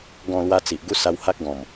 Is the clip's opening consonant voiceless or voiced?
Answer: voiced